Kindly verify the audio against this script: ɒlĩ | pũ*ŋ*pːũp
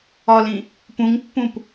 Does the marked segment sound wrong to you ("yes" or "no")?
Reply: no